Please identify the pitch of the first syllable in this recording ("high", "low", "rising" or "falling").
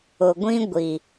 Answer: low